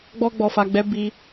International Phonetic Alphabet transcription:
ɡ͡b ɔ˧ ɡ͡b ɔ˨ f a˨ ɡ͡b ɛ˨˦ b i˧

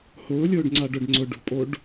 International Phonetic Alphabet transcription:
h ʊː lʲ ʊː ɖ ŋ͡ǀ a ɖ ʊ ɖ ŋ͡ǀ ʊ ɖ ṳ pʼ o ɖ

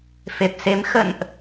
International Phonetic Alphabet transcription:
f e˨˩ p̚ s e˨˦ m x ə̰˧˨ n ʔ

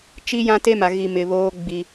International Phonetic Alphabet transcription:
t͡ʃ i˦ j ã˦ t e˦ m a˨ ɣ i˨ m ɪ˨ β oː˦ ɡ͡b i˦

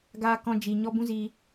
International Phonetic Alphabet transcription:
ɡ aː˧ k ɔ̃˧ d͡ʒ i˨ ɲ ɔ˦ b ũ˦ z iː˧

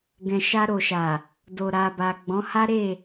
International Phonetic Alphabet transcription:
ɡ ɛ̃˨ ʃ a˧ ɾ o˨ ʃ a˨ | d o˨ ɾ a˨ b a˨ ɡ͡b ɔ̃˨˦ h a˦ ɾ e˦˨

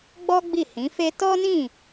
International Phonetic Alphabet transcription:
ɡ͡b ɔ˦ ɡ͡b i˦˨ h ĩ˨˦ f e˦ t ɔ˦ n ĩ˦˨

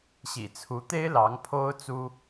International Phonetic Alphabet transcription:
ɕ ḭ˨˩ t͡sʰ u˧˥ t̪ e˥ ɪ̯ l ɑ˧˥ ŋ pʰ o˥ ʊ̯ t͡s u˥

